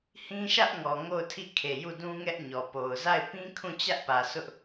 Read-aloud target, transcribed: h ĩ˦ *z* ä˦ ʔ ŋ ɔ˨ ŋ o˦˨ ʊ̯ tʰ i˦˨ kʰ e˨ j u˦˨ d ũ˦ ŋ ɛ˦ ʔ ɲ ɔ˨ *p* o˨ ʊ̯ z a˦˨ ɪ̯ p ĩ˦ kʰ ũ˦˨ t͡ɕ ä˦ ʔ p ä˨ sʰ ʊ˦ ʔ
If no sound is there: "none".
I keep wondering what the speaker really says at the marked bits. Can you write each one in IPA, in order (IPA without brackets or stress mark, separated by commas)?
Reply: ʃ, p